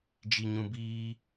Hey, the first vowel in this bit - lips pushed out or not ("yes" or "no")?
no